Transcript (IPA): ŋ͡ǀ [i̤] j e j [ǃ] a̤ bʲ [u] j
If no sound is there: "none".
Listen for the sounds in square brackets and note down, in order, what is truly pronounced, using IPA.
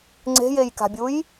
e̤, k, u

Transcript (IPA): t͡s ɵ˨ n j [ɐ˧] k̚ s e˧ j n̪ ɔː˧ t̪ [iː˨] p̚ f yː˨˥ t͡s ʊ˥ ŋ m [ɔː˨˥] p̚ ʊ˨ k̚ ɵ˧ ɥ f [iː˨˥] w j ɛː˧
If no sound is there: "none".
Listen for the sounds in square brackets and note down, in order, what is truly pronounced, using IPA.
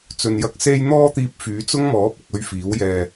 ɐ˨, iː˨, ɔː˨˥, iː˨˥

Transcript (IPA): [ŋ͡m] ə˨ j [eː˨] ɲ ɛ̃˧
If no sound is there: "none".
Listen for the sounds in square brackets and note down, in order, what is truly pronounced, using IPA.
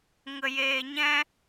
ŋ, eː˨

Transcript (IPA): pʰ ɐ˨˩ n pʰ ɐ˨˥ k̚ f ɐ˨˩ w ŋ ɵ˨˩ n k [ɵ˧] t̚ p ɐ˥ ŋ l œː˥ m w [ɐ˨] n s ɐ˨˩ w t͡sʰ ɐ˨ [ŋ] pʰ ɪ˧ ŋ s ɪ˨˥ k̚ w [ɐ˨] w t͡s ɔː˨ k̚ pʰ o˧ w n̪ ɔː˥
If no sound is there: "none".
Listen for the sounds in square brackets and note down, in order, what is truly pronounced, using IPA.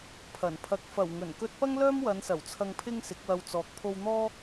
ɵ˧, ɐ˨˧, ŋ, ɐ˧

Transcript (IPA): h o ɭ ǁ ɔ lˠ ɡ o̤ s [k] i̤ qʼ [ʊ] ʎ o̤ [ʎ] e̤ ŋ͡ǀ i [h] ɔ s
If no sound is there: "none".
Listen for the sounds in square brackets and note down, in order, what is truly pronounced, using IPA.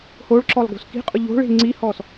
k, ʊ, ɭ, h

